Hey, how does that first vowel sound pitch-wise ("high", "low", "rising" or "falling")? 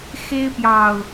high